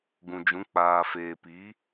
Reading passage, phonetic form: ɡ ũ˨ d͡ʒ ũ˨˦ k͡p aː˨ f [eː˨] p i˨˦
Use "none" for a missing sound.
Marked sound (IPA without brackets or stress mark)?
eː˨